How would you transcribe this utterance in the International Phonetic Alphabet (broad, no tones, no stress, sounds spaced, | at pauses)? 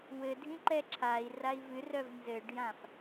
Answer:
w ɘ dʱ ĩ ǃ ɛ ǁʰ a i̯ r a i̯ v ɨ r œ v n z ɘ ɖ j ã f